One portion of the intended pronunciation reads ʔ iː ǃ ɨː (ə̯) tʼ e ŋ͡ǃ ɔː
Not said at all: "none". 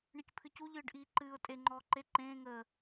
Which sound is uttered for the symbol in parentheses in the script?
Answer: ʊ̯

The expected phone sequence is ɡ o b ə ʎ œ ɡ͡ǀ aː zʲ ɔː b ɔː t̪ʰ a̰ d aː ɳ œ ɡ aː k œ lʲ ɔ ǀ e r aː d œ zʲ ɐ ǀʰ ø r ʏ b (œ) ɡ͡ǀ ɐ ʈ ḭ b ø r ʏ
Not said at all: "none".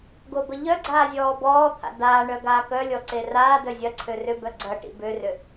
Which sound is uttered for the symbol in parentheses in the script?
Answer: œ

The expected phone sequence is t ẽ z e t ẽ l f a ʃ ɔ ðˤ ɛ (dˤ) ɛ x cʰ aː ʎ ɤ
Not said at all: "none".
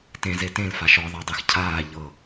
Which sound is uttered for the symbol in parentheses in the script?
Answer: dˤ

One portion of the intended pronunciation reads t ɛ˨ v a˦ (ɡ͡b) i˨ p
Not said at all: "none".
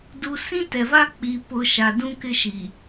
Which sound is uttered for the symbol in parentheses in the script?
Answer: k͡p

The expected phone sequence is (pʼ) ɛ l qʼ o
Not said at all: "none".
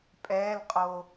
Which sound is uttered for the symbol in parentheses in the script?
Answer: pʼ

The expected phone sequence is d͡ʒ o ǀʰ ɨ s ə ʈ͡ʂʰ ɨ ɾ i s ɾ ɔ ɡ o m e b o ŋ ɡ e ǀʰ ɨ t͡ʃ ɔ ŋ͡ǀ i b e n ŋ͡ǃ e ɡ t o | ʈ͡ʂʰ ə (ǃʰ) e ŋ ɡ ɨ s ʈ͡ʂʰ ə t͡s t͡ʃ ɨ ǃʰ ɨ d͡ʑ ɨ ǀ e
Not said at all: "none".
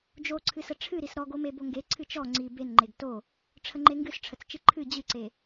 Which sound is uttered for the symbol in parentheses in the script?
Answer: ŋ͡ǃ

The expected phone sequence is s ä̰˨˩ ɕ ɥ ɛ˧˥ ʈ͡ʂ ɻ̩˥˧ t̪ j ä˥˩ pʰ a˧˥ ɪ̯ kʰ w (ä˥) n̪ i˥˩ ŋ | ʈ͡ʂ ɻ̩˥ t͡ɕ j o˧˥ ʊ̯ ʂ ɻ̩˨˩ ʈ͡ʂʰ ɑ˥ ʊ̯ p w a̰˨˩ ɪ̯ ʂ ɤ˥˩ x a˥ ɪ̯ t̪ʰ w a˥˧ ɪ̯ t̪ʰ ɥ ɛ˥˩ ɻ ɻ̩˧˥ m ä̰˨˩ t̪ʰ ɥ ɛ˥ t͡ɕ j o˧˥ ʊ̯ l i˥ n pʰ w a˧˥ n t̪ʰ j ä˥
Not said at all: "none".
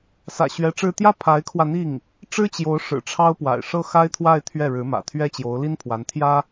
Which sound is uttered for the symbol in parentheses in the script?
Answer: ä˧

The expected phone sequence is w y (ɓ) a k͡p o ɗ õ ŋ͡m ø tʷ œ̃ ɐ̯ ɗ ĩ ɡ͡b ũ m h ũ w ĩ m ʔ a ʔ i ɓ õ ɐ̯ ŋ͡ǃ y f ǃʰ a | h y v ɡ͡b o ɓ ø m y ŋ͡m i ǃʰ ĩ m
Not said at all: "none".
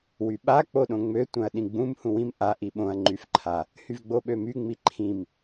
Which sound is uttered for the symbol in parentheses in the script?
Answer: ɓ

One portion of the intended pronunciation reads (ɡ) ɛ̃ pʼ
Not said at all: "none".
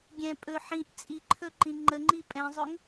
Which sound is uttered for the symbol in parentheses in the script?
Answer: ɡʲ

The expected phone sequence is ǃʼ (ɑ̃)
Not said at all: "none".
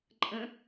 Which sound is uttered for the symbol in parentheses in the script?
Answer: ə̃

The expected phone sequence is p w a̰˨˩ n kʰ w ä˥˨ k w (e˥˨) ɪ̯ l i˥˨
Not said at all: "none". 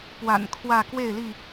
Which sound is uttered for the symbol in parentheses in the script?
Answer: e˥˨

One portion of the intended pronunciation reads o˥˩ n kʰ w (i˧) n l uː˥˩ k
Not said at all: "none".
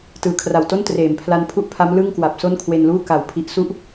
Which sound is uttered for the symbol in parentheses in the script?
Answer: e˧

